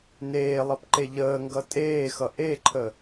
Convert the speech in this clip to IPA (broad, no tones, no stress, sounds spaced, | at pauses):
n eː lˠ ʌ p ǃ e ʎ əː ŋ ɡ ʌ tʼ eː x ʌ ʔ e ǃʰ ə